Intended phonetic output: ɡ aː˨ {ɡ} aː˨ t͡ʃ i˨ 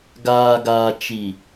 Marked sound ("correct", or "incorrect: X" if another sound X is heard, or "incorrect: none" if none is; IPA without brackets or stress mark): correct